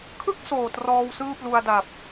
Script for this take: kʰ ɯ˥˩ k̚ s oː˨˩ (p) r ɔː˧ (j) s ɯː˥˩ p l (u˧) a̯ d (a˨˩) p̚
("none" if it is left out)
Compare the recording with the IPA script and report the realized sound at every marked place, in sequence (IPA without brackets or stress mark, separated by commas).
t, w, u˧, a˨˩